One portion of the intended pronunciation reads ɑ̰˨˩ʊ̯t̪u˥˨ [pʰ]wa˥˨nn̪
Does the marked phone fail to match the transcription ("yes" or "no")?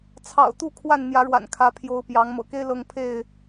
yes